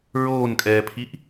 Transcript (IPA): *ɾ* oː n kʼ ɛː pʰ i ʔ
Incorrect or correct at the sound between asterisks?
incorrect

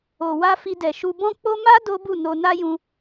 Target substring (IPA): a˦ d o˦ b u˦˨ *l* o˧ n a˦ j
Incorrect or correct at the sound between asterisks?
incorrect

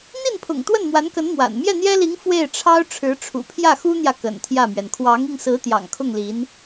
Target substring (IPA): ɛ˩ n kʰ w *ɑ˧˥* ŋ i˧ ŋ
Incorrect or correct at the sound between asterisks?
correct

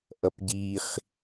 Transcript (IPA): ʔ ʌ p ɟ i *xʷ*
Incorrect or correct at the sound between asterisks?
incorrect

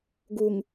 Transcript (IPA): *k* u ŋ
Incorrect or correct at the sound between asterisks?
incorrect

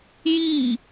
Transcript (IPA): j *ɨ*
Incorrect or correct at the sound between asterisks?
incorrect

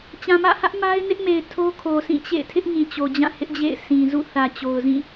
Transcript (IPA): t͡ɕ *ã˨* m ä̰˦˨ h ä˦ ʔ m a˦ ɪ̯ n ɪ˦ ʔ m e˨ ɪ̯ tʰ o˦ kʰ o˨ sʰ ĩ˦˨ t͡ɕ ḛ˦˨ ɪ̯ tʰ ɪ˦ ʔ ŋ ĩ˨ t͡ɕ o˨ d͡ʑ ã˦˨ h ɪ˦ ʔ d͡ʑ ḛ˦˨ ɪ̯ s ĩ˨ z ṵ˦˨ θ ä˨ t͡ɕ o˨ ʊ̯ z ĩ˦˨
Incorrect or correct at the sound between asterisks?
correct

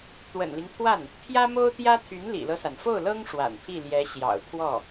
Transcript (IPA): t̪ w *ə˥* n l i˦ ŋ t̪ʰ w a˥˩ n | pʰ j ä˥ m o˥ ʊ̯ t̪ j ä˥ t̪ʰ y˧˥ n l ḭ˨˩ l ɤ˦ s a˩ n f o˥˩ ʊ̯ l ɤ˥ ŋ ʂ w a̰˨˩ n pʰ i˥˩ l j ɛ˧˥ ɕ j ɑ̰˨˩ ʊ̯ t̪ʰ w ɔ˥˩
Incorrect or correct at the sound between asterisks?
incorrect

